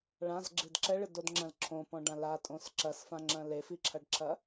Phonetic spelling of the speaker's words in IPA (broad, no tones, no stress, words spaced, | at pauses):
ɭãzɡ͡ǁɨd ǁɛɭɨdodŋ͡ǁɐ̃l ǁʰõpɔ̃ɖã latʼõs ǁɐsfãŋ͡ǁɐ̃ lefiǁʰɐɖǁʰɐ